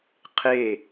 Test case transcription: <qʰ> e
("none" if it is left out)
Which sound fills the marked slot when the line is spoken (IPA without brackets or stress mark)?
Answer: qʰ